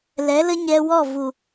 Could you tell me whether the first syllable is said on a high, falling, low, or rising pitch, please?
rising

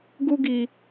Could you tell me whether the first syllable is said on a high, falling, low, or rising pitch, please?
high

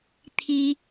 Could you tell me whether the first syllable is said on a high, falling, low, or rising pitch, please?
high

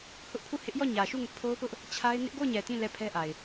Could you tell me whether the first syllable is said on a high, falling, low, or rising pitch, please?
high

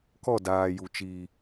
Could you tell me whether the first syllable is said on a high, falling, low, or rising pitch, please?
falling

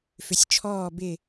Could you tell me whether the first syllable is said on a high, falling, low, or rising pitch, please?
low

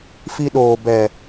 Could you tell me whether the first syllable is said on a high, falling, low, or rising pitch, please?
high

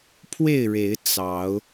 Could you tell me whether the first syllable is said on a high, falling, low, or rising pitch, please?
falling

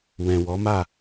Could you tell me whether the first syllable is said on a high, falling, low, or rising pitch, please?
low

